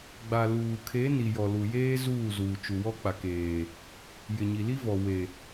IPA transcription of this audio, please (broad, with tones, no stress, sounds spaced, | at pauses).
ɡ͡b a˨ l uː˨ kʰ e˨˦ n i˨ j ɔ˨ l u˨ j eː˦ z uː˦˨ z uː˨ t͡ʃ u˨ w ɔ˦ k͡p a˨ k eː˨ | j ɪ˨ ɲ i˨ l i˦ v ɔ˨ w e˨